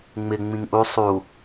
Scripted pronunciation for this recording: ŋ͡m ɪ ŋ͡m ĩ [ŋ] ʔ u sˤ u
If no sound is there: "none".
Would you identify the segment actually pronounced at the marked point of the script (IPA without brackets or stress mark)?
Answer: ŋ